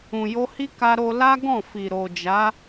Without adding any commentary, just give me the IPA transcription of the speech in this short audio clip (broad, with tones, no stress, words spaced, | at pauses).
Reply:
ũ˨jo˧hi˦ ka˧ɾo˧ la˦ ɡɔ̃˦˨fi˨ ɾo˨d͡ʒa˨˦